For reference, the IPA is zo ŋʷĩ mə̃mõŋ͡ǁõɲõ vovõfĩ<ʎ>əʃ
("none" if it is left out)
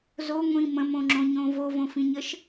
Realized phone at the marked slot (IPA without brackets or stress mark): ɲ